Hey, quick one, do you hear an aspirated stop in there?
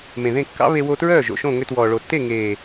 no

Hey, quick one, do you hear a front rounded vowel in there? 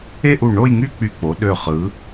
yes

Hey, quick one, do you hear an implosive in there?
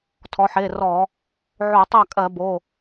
no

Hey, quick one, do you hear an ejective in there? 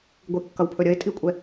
yes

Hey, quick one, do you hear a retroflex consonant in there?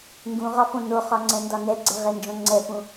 no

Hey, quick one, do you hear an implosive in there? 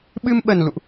yes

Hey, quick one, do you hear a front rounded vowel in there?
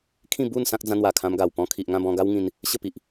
no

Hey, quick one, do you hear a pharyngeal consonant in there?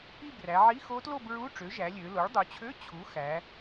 yes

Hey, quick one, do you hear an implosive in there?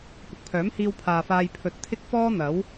no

